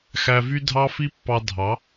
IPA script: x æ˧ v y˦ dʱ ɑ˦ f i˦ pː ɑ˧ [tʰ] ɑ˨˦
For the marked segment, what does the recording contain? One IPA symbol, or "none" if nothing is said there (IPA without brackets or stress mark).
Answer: dʱ